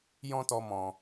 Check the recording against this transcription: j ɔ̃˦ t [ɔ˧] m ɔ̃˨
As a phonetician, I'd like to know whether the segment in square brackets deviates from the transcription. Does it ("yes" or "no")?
no